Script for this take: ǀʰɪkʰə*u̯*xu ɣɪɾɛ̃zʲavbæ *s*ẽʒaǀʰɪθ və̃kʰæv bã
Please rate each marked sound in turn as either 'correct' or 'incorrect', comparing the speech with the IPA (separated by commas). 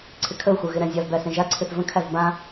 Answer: correct, correct